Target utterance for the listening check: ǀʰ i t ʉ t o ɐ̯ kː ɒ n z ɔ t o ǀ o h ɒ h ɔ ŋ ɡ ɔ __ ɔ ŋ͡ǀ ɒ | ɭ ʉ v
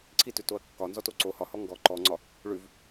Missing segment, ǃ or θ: ǃ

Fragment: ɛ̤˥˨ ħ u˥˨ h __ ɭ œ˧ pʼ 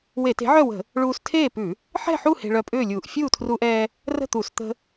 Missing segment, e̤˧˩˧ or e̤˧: e̤˧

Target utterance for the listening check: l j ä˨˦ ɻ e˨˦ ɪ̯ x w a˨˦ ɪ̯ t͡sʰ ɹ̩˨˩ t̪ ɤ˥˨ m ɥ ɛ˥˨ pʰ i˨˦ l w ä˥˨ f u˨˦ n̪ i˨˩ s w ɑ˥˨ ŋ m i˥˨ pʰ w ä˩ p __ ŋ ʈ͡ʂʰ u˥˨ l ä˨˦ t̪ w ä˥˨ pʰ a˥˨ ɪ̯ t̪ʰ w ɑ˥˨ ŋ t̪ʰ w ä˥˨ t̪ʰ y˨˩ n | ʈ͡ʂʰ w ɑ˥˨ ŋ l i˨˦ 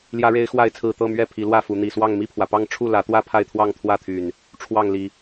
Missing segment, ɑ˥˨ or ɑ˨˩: ɑ˥˨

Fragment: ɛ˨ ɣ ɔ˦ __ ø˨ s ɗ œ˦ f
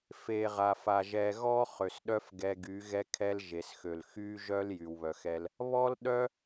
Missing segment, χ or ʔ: χ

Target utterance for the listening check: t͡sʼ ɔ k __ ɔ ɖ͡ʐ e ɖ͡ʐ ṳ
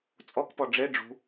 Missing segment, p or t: p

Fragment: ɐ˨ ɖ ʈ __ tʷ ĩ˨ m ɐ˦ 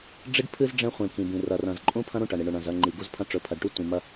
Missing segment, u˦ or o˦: u˦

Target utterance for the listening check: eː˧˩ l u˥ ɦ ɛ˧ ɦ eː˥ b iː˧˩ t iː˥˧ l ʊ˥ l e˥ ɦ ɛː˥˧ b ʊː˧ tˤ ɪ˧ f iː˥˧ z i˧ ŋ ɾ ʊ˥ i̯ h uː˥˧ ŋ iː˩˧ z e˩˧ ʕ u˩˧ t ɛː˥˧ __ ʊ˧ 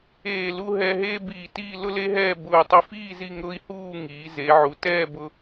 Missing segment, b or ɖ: b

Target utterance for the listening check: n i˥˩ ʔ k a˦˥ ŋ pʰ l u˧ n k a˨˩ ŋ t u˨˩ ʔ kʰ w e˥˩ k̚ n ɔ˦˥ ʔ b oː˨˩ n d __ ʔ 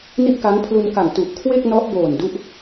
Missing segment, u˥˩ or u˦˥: u˦˥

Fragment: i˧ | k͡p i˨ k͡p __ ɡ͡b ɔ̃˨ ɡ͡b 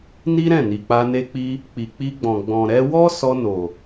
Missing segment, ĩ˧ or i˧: i˧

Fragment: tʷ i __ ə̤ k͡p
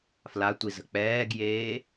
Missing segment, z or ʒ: z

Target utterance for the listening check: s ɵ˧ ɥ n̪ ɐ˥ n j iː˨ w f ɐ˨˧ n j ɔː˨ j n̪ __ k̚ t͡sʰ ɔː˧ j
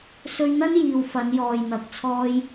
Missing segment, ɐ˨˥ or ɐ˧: ɐ˨˥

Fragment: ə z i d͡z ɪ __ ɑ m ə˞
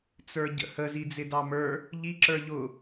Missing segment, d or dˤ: d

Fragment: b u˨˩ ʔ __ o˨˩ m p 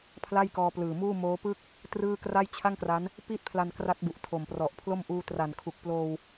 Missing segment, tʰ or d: tʰ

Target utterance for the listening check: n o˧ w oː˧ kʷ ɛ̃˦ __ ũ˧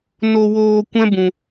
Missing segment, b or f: b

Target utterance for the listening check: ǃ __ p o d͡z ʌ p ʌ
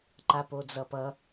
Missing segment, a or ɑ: a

